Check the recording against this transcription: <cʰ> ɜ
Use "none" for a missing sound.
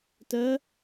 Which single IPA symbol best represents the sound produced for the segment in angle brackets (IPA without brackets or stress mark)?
t